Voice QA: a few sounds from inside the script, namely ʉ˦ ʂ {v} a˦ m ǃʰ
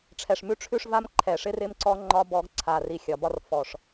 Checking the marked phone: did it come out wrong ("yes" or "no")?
no